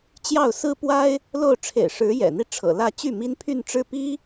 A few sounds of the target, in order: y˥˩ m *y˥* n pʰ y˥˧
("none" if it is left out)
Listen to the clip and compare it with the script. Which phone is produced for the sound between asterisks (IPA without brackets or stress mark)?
i˥